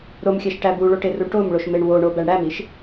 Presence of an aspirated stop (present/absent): absent